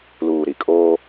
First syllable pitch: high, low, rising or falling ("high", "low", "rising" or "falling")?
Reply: low